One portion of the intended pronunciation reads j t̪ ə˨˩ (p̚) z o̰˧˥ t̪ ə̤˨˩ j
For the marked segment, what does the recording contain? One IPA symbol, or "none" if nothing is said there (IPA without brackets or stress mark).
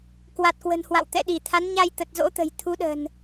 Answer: t̚